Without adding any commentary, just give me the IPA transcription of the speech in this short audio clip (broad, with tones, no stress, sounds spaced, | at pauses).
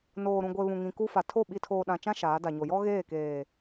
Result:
n oː˨ ɾ ũ˨ ɡʷ e˨ β ũ˨ ŋ ĩ˨ k u˦ f a˨ tʰ o˦˨ ɓ i˨ tʰ oː˨ ɗ ã˨ t͡ʃ ã˦ ʃ aː˨˦ d a˨ ɲ o˨ j ɔ˦ ɣ eː˦˨ k eː˨